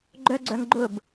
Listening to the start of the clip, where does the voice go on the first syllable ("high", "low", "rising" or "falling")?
high